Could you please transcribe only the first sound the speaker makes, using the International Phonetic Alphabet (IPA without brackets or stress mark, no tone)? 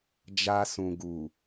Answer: d͡ʒ